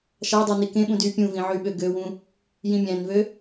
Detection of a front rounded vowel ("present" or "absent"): present